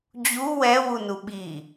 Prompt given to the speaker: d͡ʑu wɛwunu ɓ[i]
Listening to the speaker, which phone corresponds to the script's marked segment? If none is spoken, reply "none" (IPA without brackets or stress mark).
i